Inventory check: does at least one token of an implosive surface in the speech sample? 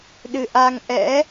yes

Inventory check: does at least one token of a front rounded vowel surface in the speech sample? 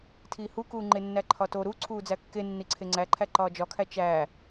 no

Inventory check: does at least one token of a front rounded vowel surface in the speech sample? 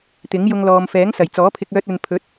yes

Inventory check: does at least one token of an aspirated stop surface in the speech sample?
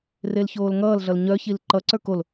no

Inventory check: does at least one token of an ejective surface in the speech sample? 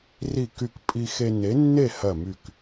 yes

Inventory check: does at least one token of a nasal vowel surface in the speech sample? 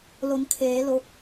no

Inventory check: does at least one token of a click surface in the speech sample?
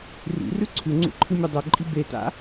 yes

